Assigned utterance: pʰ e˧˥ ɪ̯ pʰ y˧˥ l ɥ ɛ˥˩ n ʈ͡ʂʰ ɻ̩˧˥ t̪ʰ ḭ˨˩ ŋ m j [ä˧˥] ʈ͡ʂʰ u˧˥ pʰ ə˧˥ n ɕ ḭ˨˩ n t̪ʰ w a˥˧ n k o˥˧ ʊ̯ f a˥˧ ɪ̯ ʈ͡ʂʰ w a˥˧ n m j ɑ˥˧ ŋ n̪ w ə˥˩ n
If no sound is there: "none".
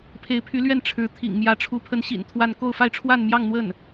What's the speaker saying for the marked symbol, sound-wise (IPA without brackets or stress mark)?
ä˧˥